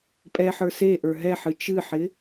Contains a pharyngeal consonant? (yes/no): yes